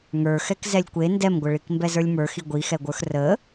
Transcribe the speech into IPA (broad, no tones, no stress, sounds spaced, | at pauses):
ŋ ə˞ x ɛ k z ɛ lʲ kʷ e n d ɛ m ɡʷ ə ɭ i k m b ɛ z ə˞ lʲ m ə˞ x i ɡʷ i x ɛ ɡʷ ə˞ x r ə